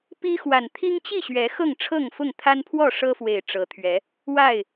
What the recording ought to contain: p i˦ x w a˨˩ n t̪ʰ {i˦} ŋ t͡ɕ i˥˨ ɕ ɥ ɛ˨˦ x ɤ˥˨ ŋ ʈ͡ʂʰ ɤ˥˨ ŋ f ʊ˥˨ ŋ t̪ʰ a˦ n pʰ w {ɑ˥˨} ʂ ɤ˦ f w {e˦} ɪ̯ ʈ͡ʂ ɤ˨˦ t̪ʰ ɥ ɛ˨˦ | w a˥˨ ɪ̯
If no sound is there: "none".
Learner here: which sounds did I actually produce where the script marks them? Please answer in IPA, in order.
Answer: i˦, ɔ˥˨, e˨˩

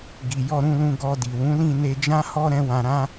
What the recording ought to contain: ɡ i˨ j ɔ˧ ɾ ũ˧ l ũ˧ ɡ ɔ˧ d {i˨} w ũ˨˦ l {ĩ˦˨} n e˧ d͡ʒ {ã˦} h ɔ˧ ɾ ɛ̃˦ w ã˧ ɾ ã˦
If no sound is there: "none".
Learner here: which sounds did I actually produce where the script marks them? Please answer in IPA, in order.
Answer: i˨, ĩ˦˨, ã˦

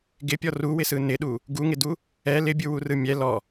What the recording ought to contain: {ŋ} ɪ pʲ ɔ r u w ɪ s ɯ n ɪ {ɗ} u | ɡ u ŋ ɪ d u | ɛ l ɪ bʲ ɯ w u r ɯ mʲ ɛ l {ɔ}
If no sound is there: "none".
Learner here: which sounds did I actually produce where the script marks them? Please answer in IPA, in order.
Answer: ɡ, ɗ, ɔ

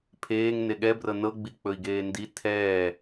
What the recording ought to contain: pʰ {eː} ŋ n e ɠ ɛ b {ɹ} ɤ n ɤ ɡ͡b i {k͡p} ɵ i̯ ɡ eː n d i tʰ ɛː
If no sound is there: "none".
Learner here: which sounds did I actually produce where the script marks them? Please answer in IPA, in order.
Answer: eː, r, k͡p

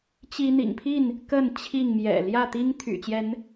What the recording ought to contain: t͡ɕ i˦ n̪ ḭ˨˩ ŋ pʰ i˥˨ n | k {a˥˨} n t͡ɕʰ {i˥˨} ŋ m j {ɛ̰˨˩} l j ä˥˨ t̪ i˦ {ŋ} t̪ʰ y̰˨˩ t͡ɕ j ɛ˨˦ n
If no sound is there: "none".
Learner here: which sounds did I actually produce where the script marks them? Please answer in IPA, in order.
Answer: ə˥˨, i˥˨, ɛ̰˨˩, ŋ

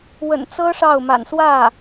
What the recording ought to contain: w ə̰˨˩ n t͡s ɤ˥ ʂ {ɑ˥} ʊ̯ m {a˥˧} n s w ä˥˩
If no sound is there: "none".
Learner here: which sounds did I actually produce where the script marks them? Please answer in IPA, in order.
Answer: ɑ˥˩, a̰˨˩

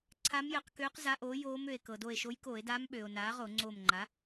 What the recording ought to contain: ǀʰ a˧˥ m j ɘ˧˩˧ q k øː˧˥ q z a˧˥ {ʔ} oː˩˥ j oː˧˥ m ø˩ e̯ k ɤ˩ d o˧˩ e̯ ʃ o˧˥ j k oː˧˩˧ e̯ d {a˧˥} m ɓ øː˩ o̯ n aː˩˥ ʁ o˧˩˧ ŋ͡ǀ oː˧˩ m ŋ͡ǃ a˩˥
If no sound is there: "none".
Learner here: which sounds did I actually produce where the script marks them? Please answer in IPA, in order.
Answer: ʔ, aː˧˥

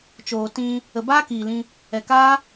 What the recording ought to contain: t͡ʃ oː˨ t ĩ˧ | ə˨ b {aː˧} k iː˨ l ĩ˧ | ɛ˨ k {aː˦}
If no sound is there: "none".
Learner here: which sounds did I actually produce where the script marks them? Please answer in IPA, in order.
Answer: aː˦, aː˦

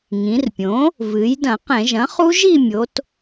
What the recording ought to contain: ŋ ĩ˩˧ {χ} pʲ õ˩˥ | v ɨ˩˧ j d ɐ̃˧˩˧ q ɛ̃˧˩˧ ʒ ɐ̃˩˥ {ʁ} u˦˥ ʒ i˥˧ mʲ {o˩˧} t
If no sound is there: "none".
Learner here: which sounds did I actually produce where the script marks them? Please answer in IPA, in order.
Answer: r, χ, o˩˧

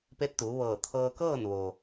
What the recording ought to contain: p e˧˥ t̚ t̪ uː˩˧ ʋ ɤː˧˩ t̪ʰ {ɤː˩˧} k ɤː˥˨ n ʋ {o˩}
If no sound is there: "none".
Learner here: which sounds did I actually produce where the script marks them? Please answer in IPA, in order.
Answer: ɤː˧, o˩

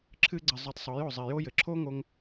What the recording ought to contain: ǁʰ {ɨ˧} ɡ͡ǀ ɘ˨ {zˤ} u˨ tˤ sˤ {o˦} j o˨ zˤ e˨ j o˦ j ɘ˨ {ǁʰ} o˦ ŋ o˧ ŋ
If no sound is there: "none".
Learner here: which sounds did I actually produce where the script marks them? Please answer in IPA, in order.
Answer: ɨ˧, zˤ, o˨˦, ǁʰ

